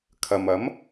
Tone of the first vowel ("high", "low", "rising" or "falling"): low